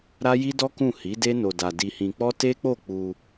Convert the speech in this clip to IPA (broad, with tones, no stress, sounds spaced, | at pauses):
ɾ a˦ j i˦ d ɔ˦ k ũ˦˨ h i˨˦ d e˦ n o˧ d a˧ d i˧ h ĩ˧ k͡p ɔ˦ t e˦ k͡p o˦˨ k͡p u˧